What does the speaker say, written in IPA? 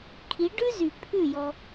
kʰ i˨˦ ɖ ʉ˦ z y˨ pʰ ʉ˦˨ j ɔ˧

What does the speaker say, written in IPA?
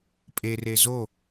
pʼ e r e z o

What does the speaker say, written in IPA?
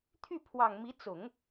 t̪ʰ y˥˩ pʰ w ɑ˨˩ ŋ m i˧˥ t͡s ʊ˨˩˦ ŋ

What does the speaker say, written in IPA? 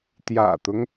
t̪ j ä̰˨˩ t̪ ʊ˦ ŋ

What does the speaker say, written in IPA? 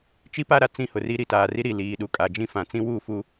t͡ʃ i˦ p a˦ ɾ a˨ t͡s ĩ˦ h ʊ˨ r i˦ ɾ i˨ t aː˨ r i˦ ɾ i˨ l iː˨ ɗ u˨ kʼ a˨ d͡ʒ ĩ˦ f ã˨ t͡s ĩ˦ w u˦˨ f u˦

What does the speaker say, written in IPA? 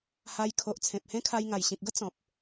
h a˧ j kʰ o˨ ʔ t͡sʰ ẽ˨ p̚ h ẽ˦ kʰ a˧ j ŋ a˨˩ j ɕ ĩ˨ k̚ ɡ ə˦ t͡s ɔ̃˨ p̚

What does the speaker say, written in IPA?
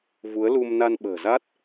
v u˨˦ ə̯ l u˧ m n a˧ n ɓ ə̤ː˨˩ z a˦˥ t̚

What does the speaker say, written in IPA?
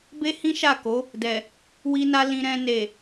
b e˦ h ĩ˦ ʃ a˦˨ k o˨˦ | d ɛ˨ | w i˧ n a˧ l ĩ˧ ɾ ɛ̃˧ n e˨

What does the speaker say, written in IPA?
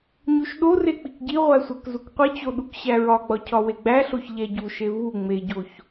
ɲ u ʃ ɗ o r e k͡p i k ɟ i ʁʷ æ sʷ æ k z u k qʷ i t͡ɕ o ɗ u k ɕ æ ɹ ɒ ɡ͡b ɒ cʰ ɒ w e ɡ͡b æ ɬ o ç ʎ æ ɟ u ʃ e v u ŋ͡m e ɟ o ç

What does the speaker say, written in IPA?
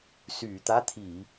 s yː˧˩˧ t̪ a˧˥˧ t̪ʰ iː˧˩˧

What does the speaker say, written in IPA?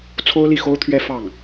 t͡sʰ o˥ ʊ̯ l i˥˩ x o˥ ʊ̯ t̪ʰ ɥ ɛ˥ f ɑ˥˩ ŋ

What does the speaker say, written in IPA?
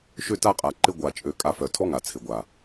ʃ ø˦ t a˦ qʼ a˧ ǃ ɪ˦ ɡʷ a˧ t͡ʃʼ ø˧ kʼ a˧ f œ˨ tʰ ɔ˦ ŋ a˨ t͡sʰ ɪ˨ ɡʷ a˨

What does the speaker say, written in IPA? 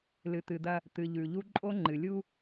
l ɨ˨ t̪ ɨ˨ d̪ ɐ˦ | t̪ ɨ˨ ʎ ʉ˨ ʎ u˦ ǃʼ o˦ ŋ͡ǃ ɨ˨ lʲ u˦

